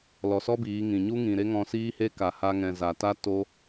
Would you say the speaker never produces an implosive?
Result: yes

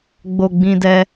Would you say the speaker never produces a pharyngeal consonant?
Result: yes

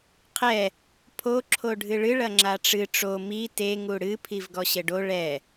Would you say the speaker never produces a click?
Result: no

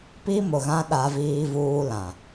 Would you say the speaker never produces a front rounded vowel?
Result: yes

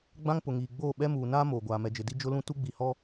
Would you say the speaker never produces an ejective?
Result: yes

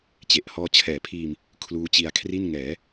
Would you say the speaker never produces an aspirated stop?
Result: no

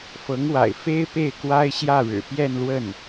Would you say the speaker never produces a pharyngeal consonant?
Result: yes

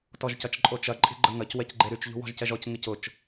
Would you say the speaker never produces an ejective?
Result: no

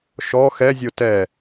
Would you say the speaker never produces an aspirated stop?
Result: yes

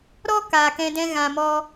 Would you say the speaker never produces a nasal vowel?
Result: no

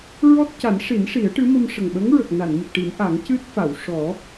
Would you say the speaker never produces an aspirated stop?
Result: yes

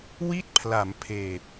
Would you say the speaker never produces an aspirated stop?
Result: no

